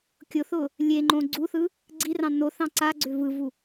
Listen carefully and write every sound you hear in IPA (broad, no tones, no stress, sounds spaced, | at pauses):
kʲ ʊ θ ʊ | lʲ e ŋ͡ǃ õ ɡ͡ǀ u θ ɯ | ɡ͡ǀ i r ɑ̃ n o θ ɑ̃ ǀ a ɡ͡ǀ ʏ v ɯ v u